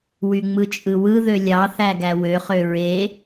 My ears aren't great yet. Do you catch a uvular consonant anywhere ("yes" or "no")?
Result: yes